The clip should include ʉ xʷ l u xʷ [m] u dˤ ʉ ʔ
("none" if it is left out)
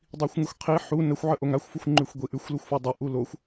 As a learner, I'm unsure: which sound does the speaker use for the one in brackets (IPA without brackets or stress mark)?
f